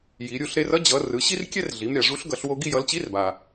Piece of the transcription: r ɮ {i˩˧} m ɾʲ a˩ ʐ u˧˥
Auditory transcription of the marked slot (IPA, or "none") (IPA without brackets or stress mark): i˩˧